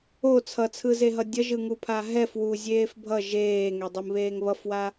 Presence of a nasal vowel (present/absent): absent